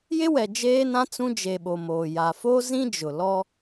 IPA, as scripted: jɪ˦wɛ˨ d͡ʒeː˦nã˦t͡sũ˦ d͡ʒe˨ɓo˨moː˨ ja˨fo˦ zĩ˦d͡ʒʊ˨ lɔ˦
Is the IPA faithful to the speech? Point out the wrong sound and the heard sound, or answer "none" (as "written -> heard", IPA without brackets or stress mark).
none